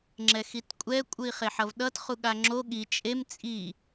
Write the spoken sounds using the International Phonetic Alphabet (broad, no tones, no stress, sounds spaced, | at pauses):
ŋ͡ǁ ɛ x i t kʷʼ ɛ kʷʼ ɯ i̯ χ e ħ ʌ v ɗ ʌ t χ u ɠ a ŋ͡ǁ o ɠ i t͡ʃʼ e m t͡sʼ i